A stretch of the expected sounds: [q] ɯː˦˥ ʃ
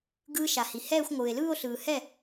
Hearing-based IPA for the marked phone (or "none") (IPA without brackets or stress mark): ɡ